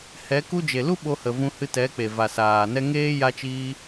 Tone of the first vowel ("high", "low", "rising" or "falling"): rising